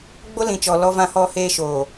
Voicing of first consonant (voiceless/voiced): voiced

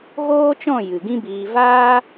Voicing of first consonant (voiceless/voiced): voiced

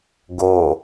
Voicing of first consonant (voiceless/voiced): voiced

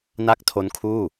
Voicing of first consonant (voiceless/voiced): voiced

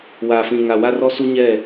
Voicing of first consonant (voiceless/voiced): voiced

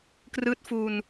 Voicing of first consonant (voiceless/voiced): voiceless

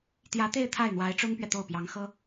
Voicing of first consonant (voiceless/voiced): voiceless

